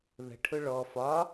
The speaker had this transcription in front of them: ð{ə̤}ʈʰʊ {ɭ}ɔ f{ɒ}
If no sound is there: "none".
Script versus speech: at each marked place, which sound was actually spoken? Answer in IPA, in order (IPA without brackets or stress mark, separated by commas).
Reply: ə̤, ɭ, ɒ